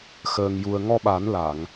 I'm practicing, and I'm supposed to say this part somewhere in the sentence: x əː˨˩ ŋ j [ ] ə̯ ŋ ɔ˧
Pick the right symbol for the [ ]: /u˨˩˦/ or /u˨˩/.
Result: u˨˩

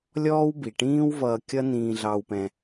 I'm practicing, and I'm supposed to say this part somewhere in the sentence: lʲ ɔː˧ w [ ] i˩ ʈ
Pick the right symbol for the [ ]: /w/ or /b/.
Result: b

